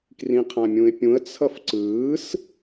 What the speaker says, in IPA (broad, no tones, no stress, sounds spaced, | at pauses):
k r ĩ qʰ ã mʲ ũ ɪ̯ pʲ ũ ə̯ t͡sʰ ʌ f ǀ ɯː s